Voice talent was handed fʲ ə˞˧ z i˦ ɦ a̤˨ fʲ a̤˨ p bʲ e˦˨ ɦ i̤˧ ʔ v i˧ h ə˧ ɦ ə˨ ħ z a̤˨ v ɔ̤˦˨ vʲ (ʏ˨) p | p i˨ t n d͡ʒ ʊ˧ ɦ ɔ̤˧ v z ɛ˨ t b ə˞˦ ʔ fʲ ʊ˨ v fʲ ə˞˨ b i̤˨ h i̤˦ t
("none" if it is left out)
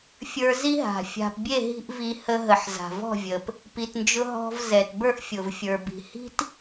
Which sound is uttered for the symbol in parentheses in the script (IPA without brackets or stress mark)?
ə˨